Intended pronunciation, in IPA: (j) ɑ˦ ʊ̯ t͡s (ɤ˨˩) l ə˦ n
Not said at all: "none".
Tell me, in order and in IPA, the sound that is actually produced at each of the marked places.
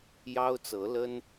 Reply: j, ɤ˨˦

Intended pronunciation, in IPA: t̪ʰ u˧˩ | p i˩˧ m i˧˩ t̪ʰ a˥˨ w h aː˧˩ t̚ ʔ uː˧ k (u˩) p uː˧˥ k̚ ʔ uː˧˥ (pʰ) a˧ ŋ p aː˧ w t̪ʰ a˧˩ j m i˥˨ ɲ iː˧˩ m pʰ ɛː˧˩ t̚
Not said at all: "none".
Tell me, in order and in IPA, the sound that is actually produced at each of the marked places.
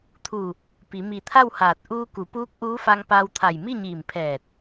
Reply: u˩˧, f

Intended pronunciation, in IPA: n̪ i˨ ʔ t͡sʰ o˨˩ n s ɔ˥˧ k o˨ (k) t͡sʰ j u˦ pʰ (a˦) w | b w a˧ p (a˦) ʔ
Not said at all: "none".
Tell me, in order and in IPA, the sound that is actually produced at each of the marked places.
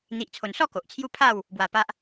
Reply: ʔ, a˥˧, a˦

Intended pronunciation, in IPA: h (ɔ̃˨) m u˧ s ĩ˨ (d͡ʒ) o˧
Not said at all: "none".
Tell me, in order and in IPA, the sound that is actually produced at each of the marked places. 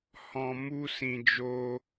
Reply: ɔ̃˨, d͡ʒ

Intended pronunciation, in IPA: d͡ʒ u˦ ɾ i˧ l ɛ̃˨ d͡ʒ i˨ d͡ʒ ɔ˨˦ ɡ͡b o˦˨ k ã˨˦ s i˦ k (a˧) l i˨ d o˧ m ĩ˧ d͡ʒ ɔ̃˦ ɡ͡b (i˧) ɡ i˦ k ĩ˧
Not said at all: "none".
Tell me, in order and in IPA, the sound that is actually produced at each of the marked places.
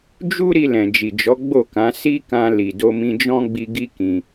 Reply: ã˧, i˧

